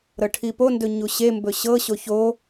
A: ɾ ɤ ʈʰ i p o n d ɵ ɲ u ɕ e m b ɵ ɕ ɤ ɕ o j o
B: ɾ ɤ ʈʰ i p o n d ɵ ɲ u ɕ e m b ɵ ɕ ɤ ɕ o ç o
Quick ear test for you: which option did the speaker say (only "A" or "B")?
B